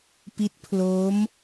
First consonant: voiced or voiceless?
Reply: voiceless